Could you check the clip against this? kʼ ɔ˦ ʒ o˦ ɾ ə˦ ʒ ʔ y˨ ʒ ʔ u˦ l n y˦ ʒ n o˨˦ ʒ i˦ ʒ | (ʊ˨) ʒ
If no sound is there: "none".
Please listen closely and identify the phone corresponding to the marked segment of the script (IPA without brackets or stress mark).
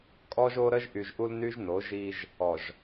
ɔ˨